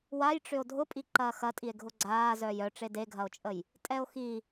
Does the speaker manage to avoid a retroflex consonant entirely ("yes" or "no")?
no